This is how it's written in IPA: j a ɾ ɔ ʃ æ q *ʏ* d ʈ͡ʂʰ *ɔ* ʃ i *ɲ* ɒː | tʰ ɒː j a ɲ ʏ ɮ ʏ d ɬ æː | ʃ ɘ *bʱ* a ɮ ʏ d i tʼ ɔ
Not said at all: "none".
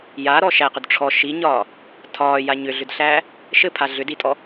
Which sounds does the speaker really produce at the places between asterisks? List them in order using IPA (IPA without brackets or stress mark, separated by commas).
ʏ, ɔ, ɲ, pʰ